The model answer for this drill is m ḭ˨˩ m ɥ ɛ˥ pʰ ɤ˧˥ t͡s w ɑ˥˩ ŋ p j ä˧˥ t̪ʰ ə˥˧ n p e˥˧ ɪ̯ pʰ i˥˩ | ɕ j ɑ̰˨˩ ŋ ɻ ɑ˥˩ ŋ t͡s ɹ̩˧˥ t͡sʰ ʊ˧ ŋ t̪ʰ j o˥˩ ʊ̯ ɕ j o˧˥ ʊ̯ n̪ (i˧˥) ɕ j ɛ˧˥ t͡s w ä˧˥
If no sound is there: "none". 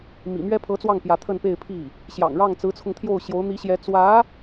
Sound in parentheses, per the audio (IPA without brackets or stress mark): i˧˥